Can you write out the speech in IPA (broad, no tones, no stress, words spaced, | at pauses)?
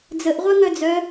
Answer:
d͡zəʔʁʷœŋœ d͡zœ